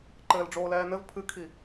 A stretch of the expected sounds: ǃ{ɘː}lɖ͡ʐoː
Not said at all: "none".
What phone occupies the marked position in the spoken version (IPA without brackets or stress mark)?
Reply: ɘː